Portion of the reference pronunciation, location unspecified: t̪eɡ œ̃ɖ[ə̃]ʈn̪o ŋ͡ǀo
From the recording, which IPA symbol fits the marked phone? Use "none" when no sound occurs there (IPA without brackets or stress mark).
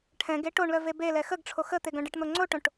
ə